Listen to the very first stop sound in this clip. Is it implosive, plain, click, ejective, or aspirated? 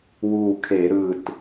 aspirated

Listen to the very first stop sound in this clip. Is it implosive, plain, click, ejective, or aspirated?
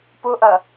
plain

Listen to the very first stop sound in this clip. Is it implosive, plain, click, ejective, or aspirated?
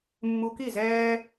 plain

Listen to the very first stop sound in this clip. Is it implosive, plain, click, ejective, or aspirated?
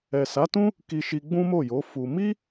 plain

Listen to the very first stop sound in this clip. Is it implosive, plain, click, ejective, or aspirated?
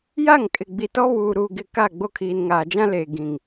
ejective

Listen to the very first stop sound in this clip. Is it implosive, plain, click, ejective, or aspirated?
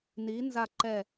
click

